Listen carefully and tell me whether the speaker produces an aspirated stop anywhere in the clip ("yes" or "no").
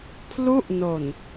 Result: yes